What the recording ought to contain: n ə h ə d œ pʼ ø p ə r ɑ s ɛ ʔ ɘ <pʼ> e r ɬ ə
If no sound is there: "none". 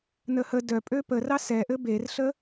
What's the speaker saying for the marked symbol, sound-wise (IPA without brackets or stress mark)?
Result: b